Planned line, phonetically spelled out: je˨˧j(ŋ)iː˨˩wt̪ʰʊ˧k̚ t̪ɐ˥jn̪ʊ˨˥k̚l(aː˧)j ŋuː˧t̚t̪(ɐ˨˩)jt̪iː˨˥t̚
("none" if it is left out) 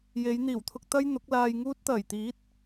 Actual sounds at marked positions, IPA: n̪, aː˧, ɐ˨˩

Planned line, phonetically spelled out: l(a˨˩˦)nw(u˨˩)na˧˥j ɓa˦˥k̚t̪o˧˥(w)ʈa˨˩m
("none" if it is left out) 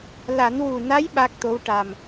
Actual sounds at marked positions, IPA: a˨˩˦, u˨˩, w

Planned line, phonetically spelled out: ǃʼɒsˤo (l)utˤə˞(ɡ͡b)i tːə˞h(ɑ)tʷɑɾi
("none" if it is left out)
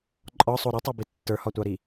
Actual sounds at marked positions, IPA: ɾ, b, ɒ

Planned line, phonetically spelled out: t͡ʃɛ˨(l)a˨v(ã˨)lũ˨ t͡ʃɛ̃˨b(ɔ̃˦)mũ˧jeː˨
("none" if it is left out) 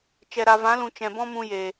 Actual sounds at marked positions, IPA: ɾ, ã˨˦, ɔ̃˦

